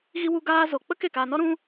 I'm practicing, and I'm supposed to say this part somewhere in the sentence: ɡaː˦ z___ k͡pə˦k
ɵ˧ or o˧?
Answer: o˧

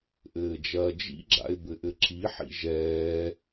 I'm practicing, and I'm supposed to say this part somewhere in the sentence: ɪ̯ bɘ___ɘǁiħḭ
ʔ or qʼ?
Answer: ʔ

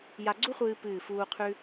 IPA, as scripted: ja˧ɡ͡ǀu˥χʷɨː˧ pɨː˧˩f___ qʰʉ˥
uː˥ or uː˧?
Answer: uː˧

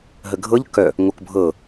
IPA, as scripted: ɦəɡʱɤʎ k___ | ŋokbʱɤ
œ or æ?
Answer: œ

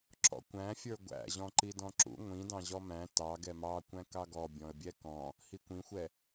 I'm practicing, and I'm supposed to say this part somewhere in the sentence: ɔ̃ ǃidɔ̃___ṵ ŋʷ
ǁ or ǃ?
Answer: ǁ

